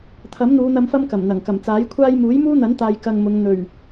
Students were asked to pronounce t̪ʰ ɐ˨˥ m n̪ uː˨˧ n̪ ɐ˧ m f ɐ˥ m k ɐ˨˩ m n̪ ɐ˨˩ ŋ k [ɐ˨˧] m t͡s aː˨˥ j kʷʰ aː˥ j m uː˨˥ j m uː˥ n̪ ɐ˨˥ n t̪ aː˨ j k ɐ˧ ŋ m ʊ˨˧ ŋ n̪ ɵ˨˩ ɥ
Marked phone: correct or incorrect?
incorrect